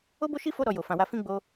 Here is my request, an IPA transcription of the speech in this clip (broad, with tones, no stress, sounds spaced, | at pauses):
o˦ b o˦ ʃ i˦ f o˦ ɾ ɔ˧ j o˨ f ã˨ w a˧ f ĩ˦ ɡ͡b o˧